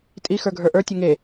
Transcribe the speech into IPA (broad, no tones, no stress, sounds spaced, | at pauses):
tʼ i x ə˞ ɡʱ ə˞ ʔ ə˞ tʲ e ŋ e